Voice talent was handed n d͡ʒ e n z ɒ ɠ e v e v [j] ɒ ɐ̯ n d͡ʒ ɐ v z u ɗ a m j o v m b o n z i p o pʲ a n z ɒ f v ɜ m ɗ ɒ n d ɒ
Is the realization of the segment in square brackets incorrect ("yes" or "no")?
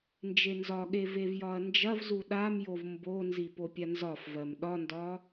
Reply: no